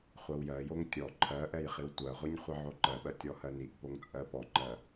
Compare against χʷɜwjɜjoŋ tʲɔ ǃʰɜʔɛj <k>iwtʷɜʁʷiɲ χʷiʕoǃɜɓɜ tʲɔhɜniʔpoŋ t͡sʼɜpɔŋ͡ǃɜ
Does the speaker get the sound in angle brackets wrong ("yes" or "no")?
yes